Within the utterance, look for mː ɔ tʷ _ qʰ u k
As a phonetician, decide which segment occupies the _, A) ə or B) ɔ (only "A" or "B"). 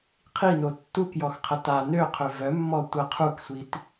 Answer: A